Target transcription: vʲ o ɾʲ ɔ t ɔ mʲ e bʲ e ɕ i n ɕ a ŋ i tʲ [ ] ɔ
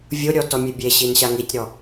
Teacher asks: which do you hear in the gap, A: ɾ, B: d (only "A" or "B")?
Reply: A